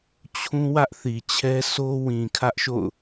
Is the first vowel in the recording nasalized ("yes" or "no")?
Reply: yes